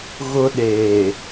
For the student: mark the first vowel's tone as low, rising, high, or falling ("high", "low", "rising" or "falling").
high